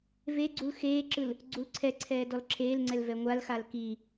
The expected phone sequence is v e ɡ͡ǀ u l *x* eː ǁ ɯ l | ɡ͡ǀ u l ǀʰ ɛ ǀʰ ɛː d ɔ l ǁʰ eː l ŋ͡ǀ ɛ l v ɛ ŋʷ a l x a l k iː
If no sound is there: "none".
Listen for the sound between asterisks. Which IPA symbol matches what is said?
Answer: x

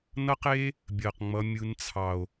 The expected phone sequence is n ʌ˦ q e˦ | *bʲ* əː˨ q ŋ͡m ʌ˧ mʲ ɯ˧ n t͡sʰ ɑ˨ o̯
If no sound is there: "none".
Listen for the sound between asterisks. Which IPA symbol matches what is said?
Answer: bʲ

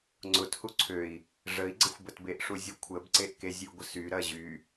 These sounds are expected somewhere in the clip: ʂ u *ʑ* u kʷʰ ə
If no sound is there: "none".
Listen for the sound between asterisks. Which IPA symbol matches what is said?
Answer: zʲ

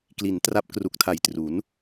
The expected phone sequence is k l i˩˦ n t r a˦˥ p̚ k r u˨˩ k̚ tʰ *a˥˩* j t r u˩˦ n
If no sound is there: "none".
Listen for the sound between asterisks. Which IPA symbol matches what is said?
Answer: a˨˩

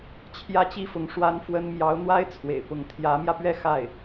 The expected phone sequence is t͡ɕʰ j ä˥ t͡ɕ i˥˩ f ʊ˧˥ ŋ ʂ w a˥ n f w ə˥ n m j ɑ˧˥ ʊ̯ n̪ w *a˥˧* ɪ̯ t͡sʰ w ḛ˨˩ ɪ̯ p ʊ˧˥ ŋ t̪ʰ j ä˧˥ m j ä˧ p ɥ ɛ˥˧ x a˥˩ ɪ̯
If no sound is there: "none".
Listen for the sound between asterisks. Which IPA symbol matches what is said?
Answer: a˥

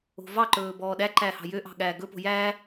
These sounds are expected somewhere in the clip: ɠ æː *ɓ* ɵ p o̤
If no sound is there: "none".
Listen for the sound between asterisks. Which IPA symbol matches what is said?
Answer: ɡ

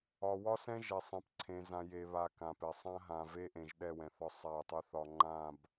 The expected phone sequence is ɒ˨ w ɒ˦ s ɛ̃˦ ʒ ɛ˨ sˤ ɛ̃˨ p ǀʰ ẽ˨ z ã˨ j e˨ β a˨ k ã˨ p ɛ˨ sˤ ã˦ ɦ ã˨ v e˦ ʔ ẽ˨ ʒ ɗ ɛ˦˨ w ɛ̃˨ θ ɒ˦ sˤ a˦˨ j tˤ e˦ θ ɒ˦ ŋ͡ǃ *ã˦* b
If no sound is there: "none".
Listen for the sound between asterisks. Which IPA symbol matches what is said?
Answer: ã˦˨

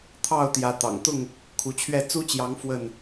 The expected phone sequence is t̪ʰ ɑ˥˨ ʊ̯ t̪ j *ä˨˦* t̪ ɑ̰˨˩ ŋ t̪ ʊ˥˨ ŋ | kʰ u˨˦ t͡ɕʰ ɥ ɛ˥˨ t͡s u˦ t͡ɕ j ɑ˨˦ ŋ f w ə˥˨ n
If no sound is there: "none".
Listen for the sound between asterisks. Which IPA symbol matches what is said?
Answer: ä˨˦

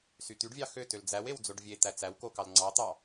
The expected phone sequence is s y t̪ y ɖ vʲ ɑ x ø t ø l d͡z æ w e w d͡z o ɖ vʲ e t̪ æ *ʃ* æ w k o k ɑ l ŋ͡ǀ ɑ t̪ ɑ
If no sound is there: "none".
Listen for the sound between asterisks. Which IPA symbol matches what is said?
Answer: t͡s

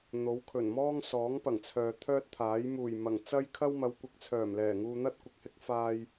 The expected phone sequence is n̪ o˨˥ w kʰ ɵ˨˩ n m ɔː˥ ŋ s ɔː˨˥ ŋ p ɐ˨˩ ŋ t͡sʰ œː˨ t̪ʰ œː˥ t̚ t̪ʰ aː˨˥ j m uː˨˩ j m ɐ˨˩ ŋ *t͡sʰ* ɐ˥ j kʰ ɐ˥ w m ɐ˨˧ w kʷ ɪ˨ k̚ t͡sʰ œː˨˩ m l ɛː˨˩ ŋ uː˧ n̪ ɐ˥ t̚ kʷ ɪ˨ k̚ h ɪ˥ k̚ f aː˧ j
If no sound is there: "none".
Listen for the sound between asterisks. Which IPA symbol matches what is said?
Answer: t͡s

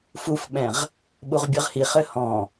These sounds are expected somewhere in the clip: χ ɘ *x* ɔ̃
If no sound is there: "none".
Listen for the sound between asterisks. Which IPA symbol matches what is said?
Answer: h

